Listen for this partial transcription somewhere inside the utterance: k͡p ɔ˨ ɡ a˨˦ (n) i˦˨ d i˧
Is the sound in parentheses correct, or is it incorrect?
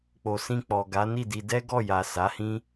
correct